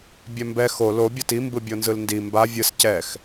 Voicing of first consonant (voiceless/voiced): voiced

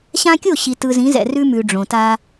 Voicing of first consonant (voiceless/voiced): voiceless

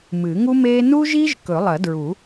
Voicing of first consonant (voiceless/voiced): voiced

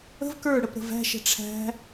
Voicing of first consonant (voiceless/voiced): voiced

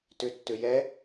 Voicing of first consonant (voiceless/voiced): voiceless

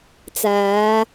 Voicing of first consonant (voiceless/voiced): voiceless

